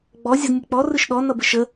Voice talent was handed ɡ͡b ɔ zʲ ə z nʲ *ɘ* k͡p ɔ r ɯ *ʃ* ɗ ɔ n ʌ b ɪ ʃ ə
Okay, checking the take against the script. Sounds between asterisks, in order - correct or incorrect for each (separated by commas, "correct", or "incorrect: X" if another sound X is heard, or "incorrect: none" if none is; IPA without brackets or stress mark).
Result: correct, correct